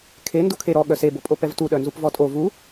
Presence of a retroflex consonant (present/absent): absent